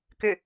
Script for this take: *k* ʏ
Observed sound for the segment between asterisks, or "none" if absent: k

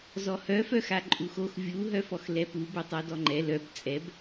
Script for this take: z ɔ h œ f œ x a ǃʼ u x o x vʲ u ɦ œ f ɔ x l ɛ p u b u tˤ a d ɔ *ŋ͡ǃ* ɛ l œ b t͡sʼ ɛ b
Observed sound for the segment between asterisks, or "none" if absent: ŋ͡ǃ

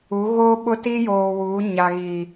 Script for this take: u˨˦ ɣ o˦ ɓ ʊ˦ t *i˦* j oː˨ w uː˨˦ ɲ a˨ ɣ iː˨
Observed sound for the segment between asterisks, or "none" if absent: i˦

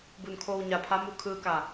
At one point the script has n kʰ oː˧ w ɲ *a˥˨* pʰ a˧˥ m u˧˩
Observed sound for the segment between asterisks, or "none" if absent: a˩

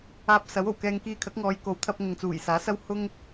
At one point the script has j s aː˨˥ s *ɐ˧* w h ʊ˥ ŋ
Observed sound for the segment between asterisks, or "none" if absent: ɐ˥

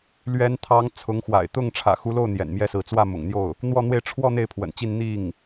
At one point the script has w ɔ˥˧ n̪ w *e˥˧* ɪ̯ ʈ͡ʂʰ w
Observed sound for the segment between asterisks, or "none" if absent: e˥˧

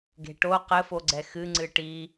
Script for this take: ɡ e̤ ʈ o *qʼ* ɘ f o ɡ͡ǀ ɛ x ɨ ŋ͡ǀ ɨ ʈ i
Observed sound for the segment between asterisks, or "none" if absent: q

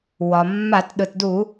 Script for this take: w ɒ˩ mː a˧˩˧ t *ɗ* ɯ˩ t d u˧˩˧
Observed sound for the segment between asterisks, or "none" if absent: ɗ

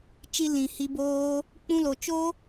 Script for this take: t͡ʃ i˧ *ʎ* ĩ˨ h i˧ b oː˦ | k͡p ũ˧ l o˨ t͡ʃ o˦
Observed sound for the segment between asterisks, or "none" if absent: l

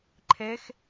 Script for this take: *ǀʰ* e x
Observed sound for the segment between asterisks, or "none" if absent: ǃʰ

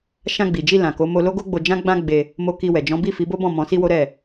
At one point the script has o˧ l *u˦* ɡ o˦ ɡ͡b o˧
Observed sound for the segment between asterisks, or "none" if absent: o˦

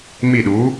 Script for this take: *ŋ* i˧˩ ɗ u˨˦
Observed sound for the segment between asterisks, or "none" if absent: m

